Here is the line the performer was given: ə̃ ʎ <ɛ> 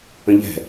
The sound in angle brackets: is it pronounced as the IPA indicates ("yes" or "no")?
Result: no